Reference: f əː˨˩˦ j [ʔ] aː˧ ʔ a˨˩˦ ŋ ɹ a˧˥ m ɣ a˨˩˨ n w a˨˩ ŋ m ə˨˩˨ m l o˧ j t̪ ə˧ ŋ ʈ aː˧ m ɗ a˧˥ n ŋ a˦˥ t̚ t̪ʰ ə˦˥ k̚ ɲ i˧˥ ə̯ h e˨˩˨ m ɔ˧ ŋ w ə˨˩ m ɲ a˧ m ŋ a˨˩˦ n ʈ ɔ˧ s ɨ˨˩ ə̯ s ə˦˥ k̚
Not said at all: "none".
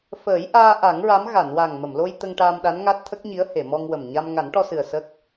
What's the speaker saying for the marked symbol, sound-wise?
ʔ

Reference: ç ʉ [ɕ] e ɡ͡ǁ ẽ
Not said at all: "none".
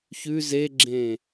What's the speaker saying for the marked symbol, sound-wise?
z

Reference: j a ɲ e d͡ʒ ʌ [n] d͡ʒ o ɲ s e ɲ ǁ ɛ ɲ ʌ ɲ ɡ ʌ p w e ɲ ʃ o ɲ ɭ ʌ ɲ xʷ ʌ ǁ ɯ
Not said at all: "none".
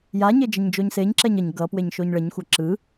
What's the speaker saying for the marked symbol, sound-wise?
ɲ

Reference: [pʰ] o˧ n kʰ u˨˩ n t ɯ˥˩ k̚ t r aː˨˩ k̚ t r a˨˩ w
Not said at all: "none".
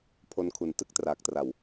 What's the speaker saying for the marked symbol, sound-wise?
pʰ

